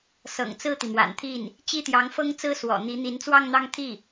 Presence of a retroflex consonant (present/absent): absent